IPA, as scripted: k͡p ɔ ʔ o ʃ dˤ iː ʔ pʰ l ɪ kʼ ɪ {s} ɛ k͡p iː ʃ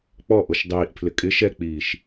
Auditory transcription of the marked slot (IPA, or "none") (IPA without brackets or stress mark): ʃ